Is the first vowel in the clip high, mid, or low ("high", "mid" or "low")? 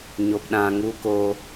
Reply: mid